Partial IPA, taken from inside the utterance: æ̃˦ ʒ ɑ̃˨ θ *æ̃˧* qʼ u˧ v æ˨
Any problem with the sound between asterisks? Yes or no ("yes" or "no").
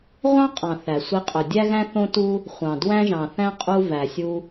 yes